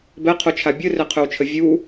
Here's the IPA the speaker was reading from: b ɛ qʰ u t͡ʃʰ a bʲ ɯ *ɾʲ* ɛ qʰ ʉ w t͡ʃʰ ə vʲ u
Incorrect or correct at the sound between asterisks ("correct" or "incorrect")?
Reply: incorrect